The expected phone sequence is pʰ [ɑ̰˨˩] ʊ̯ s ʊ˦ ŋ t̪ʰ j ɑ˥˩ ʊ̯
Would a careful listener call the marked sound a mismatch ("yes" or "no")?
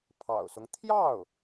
no